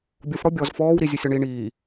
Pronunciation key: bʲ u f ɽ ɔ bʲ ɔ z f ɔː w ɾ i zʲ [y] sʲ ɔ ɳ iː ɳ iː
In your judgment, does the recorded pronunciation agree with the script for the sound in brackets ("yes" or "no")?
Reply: no